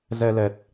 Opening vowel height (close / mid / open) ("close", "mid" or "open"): mid